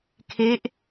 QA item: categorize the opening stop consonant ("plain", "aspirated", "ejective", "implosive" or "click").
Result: aspirated